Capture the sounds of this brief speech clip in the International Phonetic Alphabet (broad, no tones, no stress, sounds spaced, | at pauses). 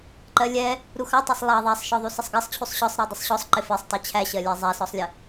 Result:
ǃ ɜ lʲ ɛ | ɾ u x ɑ tˤ ɑ sˤ lˠ ɑ ðˤ æ sˤ ʃ ɔ ðˤ u s ə sˤ ɡ ɜ sˤ t͡ɕʰ u sˤ ɕ ɒ sˤ ɾ ɜ dˤ ə sˤ ɕ ɔ sˤ ǃ ɪ f ɛ sˤ tˤ ɜ t͡ɕʰ æ ɕ ɜ lʲ æ zˤ æ s ɔ sˤ lʲ ə